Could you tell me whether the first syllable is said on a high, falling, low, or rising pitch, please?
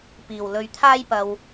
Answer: low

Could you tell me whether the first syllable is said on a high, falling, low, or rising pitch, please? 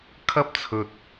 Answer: high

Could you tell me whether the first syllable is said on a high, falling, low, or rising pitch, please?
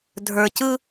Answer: low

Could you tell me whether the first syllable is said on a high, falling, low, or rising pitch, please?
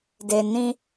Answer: low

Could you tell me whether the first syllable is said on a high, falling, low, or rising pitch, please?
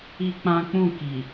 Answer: high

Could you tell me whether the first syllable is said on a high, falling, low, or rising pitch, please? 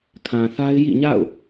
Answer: low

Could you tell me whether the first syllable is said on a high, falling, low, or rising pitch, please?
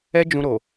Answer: high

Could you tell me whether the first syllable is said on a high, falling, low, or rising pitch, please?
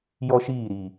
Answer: high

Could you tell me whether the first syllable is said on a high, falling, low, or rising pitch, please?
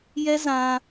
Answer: high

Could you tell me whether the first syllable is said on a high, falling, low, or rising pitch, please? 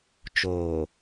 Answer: low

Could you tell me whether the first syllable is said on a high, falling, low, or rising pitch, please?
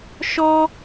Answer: high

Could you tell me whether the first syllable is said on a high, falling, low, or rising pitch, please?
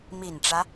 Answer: low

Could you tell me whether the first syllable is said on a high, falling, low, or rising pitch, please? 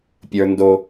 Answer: high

